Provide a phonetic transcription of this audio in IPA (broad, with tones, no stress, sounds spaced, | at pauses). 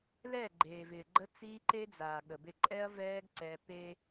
l ɛ˦˨ ɡ͡ǃ eː˨ v ɪː˨ ɡ͡ǃ ə˦ t͡s iː˦ ǃ e˦ d͡z aː˨ ɠ ə˨ b ɪ˦˨ ǃʼ ɛ˦ ɐ̯ v ɛː˦ ɡ ǀ ɛ˦ p e˦